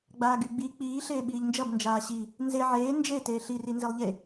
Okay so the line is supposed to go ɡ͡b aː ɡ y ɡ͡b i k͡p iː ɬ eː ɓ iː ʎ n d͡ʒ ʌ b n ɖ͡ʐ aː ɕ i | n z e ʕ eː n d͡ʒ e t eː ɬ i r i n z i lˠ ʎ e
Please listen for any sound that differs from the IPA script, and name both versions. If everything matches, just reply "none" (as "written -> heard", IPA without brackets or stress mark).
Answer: ɖ͡ʐ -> d͡ʒ